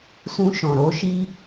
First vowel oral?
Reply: no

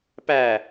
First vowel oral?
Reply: yes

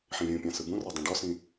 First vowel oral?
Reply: no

